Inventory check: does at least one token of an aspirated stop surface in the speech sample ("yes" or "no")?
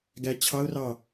yes